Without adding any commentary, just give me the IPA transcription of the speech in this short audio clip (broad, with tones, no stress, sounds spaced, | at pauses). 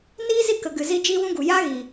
n iː˦ z i˦˨ k ə˨ ɡ ɨ˨ z i˧ d͡ʒ iː˦ w ũ˦ ɡ u˨ j aː˦ ɣ iː˨